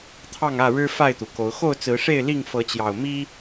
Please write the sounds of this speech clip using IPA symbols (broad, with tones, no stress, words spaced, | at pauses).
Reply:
t̪ʰɑ˥˨ŋä˥˨ɻɻ̩˦ fa˥˨ɪ̯t̪u˩ko˨˦ʊ̯ xo˥˨ʊ̯t͡sɹ̩˨˦ʂe˥˨ɪ̯li˥˨ŋ fɤ˨˦t͡ɕjɑ˨˩ʊ̯ mi˦